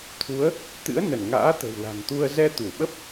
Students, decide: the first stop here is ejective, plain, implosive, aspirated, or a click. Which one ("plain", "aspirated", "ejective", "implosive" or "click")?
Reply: aspirated